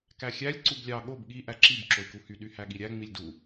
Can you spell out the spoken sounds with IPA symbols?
k æ xʲ æ lʲ ǀ u b lʲ ɑ ɠ o b ɠ i ʔ æ ǁ i b ǁ o i̯ k u h y ɗ y h æ ɠ i ɾʲ æ ŋ͡m i lʲ d u

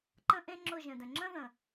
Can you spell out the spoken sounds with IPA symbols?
ǃ ə̃˦ ʔ ẽ˦ ŋ͡ǁ ʊ˦˨ ʒ ə̃˨ d ə̃˨ ŋ͡ǁ ə̃˦ ð ə̃˨

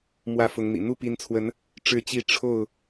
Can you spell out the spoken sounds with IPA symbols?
m w ä˥˨ f ʊ˨˦ ŋ n̪ ḭ˨˩ n̪ u˥˨ p i˨˦ n t͡sʰ w ə˨˦ n | ʈ͡ʂ ɻ̩˥˨ t͡ɕ i˥˨ ʈ͡ʂʰ o˥˨ ʊ̯

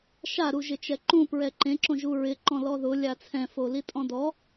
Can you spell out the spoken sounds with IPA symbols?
ʃ a ɾ u ʒ ɪ t͡ʃ ɛ ǃ ũ p ɹ ɛ ǃ ẽ ǁ õ ʒ u ɹ ɪ ǃ ɔ̃ l ɔ ð ʊ lʲ a t͡sʰ ɛ̃ f o l i tʼ ɔ̃ d ɔ

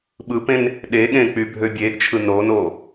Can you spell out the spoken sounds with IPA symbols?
ɓ ɯ p ẽ n | ɗ e ɠ ẽ k͡p y bʱ ø bʲ eː ɡ t͡ʃʰ ɯ n oː n oː

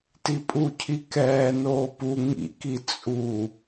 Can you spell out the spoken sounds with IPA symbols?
t i pʼ u cʰ i k ɛː n oː p u ŋ ḭ k i t͡sʼ u

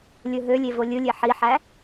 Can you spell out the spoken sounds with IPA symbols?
lʲ ɯ ɦ ø lʲ e v o lʲ ɯ lʲ e ħ i ħ æ

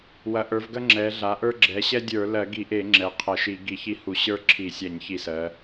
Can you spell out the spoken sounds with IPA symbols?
w ɐ˩˧ ʔ ə˞˩˧ v ɡ ɐ˦ ŋ͡ǁ ɛ˩˧ ɮ a˩˧ ʔ ə˞˦ ɡ͡ǁ ɛ˩˧ ɕ ɛ˦ dʲ ə˞˧˩˧ l ɜ˧˩˧ ɡ i˧˩˧ ʔ e˧˩˧ ŋ͡ǁ ɛ˩˧ qʰ ɐ˧˩˧ ʃ i˧˩˧ ɡ i˧˩˧ ç i˦ h u˧˩˧ ɕ ə˞˦ ǁʰ i˧˩˧ sʲ a˧˩˧ ɲ ç i˧˩˧ s ɜ˩˧

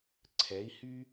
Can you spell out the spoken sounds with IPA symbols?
ǀʰ ɛ˨˦ i̯ h y˦

